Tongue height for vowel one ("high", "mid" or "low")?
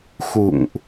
high